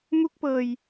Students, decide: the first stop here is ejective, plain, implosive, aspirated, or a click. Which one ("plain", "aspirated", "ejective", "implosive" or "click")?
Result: plain